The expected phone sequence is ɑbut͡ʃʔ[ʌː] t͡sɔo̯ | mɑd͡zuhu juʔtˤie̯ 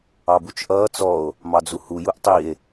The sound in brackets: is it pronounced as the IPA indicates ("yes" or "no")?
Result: yes